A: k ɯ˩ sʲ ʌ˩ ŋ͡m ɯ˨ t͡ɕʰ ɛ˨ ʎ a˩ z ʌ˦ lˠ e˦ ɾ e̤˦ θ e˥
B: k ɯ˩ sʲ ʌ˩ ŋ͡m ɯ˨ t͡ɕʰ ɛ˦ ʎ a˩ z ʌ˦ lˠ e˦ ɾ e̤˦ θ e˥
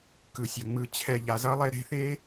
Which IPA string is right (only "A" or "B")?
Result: A